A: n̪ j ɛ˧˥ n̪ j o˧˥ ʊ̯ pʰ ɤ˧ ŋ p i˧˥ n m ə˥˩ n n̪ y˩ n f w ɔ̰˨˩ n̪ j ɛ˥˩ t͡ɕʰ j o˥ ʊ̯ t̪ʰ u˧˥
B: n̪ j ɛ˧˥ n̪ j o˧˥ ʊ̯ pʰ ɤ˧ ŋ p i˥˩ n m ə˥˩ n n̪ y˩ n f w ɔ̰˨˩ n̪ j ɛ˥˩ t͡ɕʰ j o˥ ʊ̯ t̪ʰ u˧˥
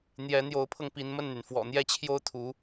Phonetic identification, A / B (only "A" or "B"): A